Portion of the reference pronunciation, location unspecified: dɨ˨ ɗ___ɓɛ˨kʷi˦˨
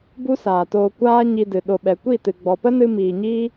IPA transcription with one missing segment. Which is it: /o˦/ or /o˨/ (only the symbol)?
o˨